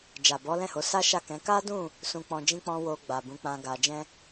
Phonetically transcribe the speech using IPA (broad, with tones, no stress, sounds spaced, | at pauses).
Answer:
d͡ʒ a˨ b ɔ˨˦ l ɛ̃˦˨ h o˨˦ s a˦ ʃ a˦˨ k ɛ̃˨˦ k a˦ d ũ˦˨ | s ũ˧ k͡p ɔ̃˧ d͡ʒ ĩ˦ k͡p ɔ̃˦ w o˧ ɡ͡b a˨ b ũ˨˦ k͡p ã˧ ɡ a˧ d͡ʒ ɛ̃˦